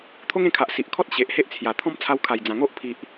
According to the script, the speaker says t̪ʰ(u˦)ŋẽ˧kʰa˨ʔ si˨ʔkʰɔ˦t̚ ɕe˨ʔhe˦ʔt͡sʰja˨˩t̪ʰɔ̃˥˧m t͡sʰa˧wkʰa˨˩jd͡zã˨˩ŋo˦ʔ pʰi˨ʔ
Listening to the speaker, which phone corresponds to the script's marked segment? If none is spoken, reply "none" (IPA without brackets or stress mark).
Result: o˦